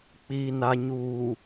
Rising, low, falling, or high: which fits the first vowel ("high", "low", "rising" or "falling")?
low